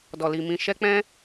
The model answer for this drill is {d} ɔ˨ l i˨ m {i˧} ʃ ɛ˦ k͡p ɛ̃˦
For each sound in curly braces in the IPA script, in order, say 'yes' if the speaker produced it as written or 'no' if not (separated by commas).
yes, no